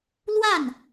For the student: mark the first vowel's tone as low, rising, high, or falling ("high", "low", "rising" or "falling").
falling